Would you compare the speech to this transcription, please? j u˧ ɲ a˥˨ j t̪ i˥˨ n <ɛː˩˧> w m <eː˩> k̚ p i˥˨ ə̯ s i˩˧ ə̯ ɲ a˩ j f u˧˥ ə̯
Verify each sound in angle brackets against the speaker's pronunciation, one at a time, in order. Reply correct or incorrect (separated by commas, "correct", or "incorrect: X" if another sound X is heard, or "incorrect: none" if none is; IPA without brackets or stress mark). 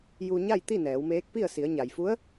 correct, incorrect: eː˧˥